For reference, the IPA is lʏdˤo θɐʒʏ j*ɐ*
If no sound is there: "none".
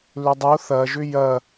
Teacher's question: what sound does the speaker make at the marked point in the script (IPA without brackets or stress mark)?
ɐ